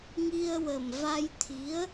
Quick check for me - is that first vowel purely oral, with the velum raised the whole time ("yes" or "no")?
yes